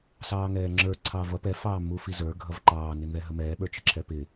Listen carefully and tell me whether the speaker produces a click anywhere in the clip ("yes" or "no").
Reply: yes